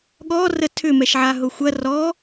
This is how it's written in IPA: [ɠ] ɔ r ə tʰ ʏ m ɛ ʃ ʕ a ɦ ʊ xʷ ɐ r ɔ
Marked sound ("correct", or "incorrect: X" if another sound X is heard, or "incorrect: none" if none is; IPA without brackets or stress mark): correct